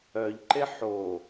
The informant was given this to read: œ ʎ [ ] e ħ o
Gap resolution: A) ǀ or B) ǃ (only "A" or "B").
B